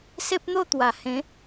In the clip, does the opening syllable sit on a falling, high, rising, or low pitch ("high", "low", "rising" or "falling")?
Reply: high